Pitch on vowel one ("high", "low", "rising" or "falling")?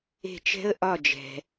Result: falling